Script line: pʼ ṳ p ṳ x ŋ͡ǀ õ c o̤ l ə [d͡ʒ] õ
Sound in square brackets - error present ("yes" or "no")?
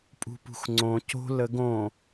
yes